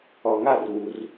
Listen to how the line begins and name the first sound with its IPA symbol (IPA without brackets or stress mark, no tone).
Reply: ɔ